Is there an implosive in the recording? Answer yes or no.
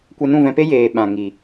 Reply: yes